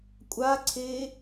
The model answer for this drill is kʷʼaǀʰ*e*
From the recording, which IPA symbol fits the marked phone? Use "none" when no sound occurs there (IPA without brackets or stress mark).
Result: e